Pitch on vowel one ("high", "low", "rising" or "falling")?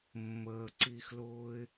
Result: low